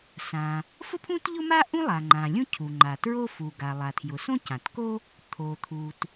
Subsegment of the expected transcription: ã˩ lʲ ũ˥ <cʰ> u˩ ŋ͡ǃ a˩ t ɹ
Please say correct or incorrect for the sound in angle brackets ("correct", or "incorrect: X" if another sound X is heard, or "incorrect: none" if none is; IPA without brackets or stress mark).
correct